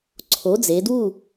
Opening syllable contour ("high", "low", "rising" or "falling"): rising